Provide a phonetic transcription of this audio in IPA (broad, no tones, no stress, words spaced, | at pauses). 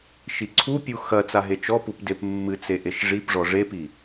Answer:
ʃiǀʰupʲu xɐ t͡saɦet͡ʃɔpup depmːɨt͡se ʔeʃʐipʐɔ ʐepi